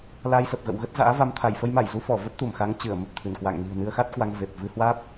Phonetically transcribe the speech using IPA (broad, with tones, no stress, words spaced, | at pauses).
la˧jsə˨˩p̚ɣə̰˧˨wɣə˦˥t̚ za̰ː˧˥va˧m t̪ʰa˧˩jfə˧j ma˧˩jzu˧fɔ˧˩ və˦˥p̚t̪u˧˩mxa˨˦ŋ t͡ɕɨ˧˩ə̯mə˨˩p̚t̪ʰɨ˧˩nkwa̰˧˨ŋ ni̤˨˩ə̯nɨ˧ə̯xa˦˥t̚kwa˧ŋ ve˨˩p̚ vɨ˧hwaː˦˥p̚